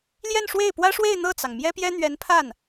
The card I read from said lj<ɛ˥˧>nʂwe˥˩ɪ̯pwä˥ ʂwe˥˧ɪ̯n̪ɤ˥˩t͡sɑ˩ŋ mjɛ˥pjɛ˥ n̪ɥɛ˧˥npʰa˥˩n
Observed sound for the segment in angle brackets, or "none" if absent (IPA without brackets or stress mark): ɛ˥˧